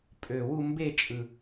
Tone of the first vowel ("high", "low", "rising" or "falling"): low